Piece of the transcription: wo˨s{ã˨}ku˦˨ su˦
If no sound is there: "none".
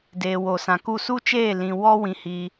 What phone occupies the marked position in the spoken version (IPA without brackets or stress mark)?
ã˨